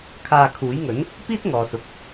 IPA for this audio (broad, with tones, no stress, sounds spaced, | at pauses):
kʰ aː˧ kʰ uː˨˥ j ŋ ɵ˨˥ n | p iː˥ t̚ ŋ ɔː˨ s ʊ˨ k̚